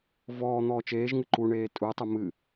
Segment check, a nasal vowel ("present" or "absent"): absent